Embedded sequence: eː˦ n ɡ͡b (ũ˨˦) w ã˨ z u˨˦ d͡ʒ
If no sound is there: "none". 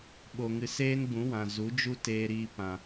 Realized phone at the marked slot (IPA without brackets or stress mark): ũ˨˦